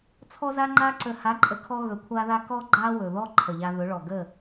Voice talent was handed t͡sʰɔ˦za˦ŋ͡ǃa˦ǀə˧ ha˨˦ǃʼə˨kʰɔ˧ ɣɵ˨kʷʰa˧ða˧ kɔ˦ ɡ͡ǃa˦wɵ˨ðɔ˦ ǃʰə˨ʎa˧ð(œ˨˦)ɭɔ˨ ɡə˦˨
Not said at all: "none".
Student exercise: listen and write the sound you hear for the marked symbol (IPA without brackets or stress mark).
ɵ˨˦